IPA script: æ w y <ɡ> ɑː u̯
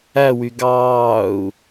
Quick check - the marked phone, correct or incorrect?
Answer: correct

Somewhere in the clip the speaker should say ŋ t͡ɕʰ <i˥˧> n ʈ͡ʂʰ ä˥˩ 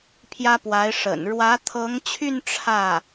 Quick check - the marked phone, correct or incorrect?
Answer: incorrect: y˥˧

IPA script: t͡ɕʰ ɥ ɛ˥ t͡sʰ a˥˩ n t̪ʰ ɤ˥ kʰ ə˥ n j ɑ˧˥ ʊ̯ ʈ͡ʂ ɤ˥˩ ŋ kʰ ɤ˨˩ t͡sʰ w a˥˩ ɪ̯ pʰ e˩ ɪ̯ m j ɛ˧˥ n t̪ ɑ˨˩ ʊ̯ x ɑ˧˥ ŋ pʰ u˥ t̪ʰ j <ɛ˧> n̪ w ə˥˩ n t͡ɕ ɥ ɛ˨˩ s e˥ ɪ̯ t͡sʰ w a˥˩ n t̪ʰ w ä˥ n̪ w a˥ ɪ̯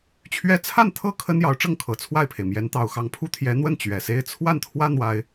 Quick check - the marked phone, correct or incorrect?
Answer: incorrect: ɛ˧˥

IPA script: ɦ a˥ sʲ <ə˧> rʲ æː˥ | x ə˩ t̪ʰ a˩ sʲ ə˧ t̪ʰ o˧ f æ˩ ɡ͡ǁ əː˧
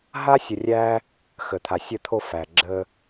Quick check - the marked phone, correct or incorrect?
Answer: correct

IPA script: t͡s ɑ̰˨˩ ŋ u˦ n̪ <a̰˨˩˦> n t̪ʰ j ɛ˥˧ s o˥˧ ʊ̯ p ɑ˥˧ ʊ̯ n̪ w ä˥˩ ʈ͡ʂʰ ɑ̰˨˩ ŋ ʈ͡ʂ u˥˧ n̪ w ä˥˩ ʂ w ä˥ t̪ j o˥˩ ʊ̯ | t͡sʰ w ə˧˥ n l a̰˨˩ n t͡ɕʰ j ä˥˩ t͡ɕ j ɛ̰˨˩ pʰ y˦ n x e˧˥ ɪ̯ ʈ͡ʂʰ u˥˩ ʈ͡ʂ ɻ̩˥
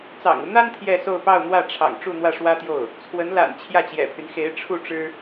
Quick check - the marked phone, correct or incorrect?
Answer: incorrect: a˥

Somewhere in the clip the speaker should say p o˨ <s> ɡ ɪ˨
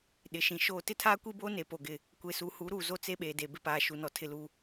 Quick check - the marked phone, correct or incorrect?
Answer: incorrect: none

